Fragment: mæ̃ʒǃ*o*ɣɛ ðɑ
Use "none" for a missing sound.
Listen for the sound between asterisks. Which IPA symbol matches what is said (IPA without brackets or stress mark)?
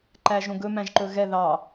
ɵ